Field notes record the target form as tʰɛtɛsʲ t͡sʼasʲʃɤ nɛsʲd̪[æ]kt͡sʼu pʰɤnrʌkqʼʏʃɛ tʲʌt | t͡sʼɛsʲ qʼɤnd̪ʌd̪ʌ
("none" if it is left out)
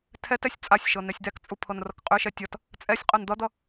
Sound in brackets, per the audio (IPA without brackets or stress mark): æ